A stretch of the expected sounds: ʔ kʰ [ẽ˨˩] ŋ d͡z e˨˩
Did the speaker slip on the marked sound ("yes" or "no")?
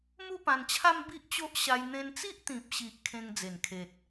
yes